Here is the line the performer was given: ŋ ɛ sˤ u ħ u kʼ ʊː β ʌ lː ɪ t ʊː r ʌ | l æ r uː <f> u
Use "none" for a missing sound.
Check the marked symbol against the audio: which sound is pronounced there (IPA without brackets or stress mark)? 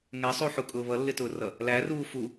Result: f